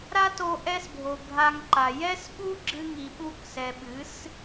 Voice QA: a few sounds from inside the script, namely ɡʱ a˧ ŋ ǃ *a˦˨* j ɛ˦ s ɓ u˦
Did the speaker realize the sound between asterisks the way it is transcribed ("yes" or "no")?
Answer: no